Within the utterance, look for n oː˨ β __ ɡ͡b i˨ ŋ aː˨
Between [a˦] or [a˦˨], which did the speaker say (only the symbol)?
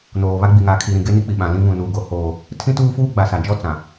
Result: a˦